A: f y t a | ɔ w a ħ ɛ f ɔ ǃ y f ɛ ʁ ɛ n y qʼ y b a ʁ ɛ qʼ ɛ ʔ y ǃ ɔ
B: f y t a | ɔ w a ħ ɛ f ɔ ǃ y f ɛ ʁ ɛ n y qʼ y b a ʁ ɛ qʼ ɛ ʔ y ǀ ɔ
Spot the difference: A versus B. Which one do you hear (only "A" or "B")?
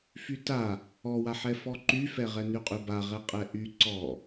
B